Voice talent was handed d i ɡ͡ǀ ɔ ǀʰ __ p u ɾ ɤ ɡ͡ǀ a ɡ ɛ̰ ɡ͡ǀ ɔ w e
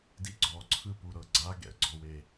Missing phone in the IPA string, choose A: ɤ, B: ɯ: B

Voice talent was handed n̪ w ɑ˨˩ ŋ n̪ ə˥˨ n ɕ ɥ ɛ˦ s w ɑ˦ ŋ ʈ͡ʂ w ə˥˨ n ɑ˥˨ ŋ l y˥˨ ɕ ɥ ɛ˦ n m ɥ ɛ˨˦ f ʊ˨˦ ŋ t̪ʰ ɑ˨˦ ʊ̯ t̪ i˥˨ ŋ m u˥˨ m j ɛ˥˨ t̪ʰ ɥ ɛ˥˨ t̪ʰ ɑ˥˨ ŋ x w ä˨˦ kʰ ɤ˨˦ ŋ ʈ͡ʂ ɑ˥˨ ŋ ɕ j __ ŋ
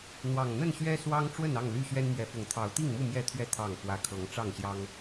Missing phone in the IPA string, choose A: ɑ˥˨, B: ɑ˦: B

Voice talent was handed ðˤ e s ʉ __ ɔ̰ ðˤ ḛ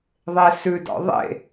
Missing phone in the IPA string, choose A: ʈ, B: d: B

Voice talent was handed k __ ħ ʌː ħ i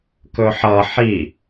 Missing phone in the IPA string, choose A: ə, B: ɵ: B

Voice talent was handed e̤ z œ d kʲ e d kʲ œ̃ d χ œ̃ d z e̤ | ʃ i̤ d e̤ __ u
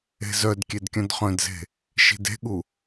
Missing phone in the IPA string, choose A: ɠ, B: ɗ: A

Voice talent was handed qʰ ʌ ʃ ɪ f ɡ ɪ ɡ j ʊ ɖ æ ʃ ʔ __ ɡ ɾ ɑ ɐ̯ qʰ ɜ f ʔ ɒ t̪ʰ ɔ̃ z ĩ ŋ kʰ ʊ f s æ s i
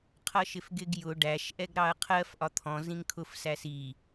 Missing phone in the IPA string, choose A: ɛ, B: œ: A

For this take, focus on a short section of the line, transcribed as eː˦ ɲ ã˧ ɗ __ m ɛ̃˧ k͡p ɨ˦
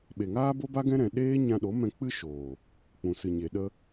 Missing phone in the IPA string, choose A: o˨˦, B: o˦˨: A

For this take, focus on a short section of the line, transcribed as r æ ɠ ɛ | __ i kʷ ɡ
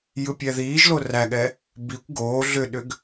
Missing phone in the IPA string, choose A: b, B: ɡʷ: A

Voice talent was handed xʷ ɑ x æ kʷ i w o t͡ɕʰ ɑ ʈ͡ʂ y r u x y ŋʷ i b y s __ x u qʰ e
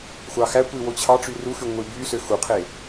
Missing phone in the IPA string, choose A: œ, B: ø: B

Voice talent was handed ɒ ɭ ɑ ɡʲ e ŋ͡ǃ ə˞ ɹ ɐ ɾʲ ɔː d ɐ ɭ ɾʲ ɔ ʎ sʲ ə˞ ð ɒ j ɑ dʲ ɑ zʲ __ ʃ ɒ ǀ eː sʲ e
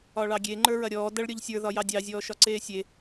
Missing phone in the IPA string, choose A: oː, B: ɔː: B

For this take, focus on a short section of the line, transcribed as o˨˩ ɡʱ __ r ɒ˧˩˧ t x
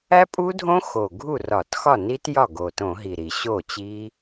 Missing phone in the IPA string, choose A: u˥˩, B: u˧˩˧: A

